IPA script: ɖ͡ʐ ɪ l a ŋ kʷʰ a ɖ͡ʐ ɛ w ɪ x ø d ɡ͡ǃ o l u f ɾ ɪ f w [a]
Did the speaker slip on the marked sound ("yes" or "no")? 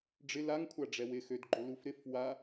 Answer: no